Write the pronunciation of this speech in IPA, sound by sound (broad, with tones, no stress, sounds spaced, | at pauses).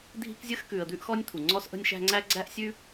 dʱ i̤˥ k zʲ ə˥ x k ʉ˨ ə̯ d̪ ʉ˦ ʔ x ɔ˦ nʲ t̪ʰ u˩ ŋ͡ǀ ɔ˦ s ʔ ə̤˦ nʲ ʃ æ̤˦ ŋ͡ǀ æ˥ ɡ͡ǀ æ˥ ʔ sʲ ʉ˦